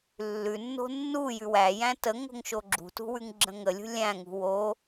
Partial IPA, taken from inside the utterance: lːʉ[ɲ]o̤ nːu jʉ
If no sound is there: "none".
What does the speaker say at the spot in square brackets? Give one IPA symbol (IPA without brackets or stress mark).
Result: nː